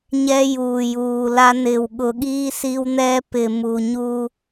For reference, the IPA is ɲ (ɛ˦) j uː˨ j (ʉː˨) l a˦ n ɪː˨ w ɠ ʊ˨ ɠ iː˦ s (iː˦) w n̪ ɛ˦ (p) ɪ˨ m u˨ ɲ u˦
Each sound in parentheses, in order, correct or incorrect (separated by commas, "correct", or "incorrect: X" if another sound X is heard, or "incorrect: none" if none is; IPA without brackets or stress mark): correct, incorrect: uː˨, incorrect: i˦, correct